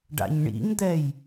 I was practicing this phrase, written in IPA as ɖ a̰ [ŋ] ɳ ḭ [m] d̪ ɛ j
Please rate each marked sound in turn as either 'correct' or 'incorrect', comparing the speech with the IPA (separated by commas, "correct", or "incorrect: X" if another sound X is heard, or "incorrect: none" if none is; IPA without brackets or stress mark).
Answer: incorrect: ɲ, correct